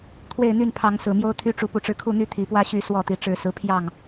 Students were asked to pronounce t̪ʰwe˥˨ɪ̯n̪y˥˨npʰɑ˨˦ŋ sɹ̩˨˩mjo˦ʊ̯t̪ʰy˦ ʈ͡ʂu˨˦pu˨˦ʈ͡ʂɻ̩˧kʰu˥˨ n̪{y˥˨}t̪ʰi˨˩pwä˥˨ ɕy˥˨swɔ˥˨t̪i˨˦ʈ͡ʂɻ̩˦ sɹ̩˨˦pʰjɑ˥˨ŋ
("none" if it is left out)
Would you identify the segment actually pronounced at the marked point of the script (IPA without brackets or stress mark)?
y˥˨